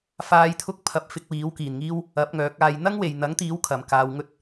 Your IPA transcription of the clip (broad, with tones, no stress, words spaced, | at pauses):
faː˨˧jt̪ʰʊ˧k̚pʰɐ˨p̚ fɪ˧k̚wiː˨˥wkiː˨nŋiː˥w | ɐ˨˥p̚ŋœː˨˥k̚aː˧j n̪ɐ˥ŋwe˨jn̪ɐ˨˥ŋ t̪iː˨˥w kʰɐ˨mkaː˧wŋɵ˥t̚